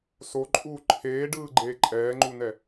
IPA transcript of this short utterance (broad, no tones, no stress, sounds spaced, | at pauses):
s o ǃʼ uː ǃʰ eː ɖ ɯː ɡ͡ǃ eː ǃʼ ɛː ŋ͡ǃ u n ɛ